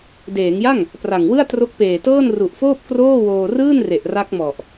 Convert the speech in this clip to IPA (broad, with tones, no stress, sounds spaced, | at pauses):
d eː˩˦ ŋ j a˥˩ ŋ | p r a˨˩ ŋ w ɯ˥˩ a̯ t r o˦˥ k̚ p eː˨˩ t ɤː˥˩ n r u˨˩ ʔ f oː˥˩ p̚ k r oː˥˩ w oː˧ r ɯː˥˩ n r e˨˩ ʔ r a˦˥ k̚ m ɔ˨˩ ʔ